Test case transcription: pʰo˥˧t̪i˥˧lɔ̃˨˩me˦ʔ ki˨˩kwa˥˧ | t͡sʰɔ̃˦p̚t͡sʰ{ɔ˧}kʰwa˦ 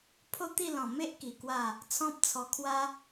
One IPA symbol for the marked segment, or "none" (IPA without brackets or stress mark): ɔ˧